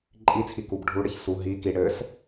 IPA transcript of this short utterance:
ǃʼ i t͡sʰ i k u b ɖʱ u ɽ ɘ ç s u ɦ i k i ɽ ɘ s

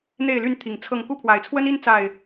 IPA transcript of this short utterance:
n̪ e˥˨ ɪ̯ l y˥˨ n t̪ʰ i˨˩ ŋ t͡sʰ ɤ˥˨ ŋ k u˥˨ pʰ w a˨˩ ɪ̯ t͡sʰ w ə˦ n i˦ n t͡s a˥˨ ɪ̯

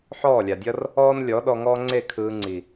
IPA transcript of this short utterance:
ħ ɔː˦˨ lʲ a˨ dʲ ʌ˦ r | ɔː˦ n lʲ ɔ˨˦ ɗ ɔ˧ ŋ ɔː˦ ŋ͡ǀ e˦˨ kʰ ɯː˧ ŋ͡ǀ i˨

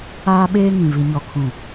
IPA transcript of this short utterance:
aː˦ ɓ eː˦ ŋ ĩ˨ v i˨ ɲ ɔ˨ kʰ ũ˨

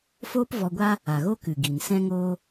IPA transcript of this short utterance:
f oː˦ p v ɔ˧ ɡʷ a˦ | a˨ ɣ o˦ k ɨ˨ ɡ i˨ n s ɛ̃˦ ŋ oː˦

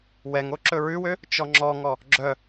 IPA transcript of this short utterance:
w ɛ ŋ o ǁ ɵ ɹ ʉ w ø | t͡ʃ ɔ ŋ͡ǁ ɔ ŋ ɔ | ɡ͡ǁ œ

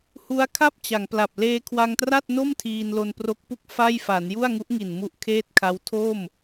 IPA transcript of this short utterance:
h u˦˥ a̯ kʰ a˥˩ p̚ t͡ɕ a˩˦ ŋ p l a˨˩ p̚ l eː˧ kʰ w a˧ ŋ t r a˥˩ t̚ n o˥˩ m tʰ iː˧ n l o˧ n p r o˦˥ k̚ p u˥˩ k̚ f a˥˩ j f a˩˦ n j u˥˩ a̯ ŋ u˦˥ ʔ ŋ i˨˩ n m u˦˥ ʔ kʰ eː˥˩ t̚ kʰ a˦˥ w tʰ o˥˩ m

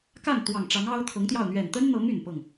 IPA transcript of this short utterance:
k a˥˩ n t̪ w ɑ˨˩ ŋ ʈ͡ʂ ɑ˧˥ ŋ ɑ˥ ʊ̯ t̪ʰ ɤ˧˥ ŋ t̪ j ɑ˥˩ ʊ̯ n̪ ɥ ɛ˨˩ n t̪ ə˥ n n̪ ɤ˧˥ ŋ y˨˩ n p ɤ˥˩ ŋ

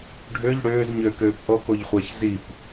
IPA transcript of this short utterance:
ɖʱ ø ʎ ɽ øː z ɲ ø k øː p ʔ ɔ k o ʎ χʷ æ ç z i p

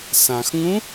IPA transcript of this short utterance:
s ã x ŋ ũ

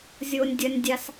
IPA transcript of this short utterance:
zʲ o nʲ dʲ ɐ nʲ dʲ a s

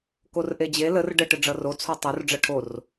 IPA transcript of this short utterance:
k o r ʔ e d͡ʑ e l ə r ɖ ə ʈ ɘ ɖ͡ʐ ʌ r o t͡sʰ o tˤ o r ɖ͡ʐ ʌ ʈʰ o r

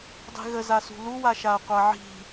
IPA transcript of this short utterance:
dˤ i̤ ɣ ə z a s ṳ l u w a ʃ a ɐ̯ qʷ a ʕ i̤

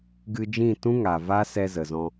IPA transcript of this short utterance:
ɡ ɨ˧ d͡ʒ ĩ˦˨ t ũ˦ ŋ a˨ v a˦ s ɛ˧ z ə˨ z ɔ̃˧

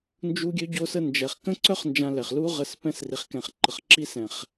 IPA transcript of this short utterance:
n d͡ʒ u˦ ɡʲ ø˦ ɟ o˦ s ə˧ n d͡ʒ ɛ˨ χ k ə̃˦ ǀ œ˦ χ n d͡ʒ ã˧ l ɛ˨ χ l u˧ ʁ ə˨ s p ɛ̃˧ s r i˨ χ k ɛ̃˨ χ ǃ ə˨ χ ǁ i˧ s ɛ̃˨ χ

